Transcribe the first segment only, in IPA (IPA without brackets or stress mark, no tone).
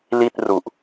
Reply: l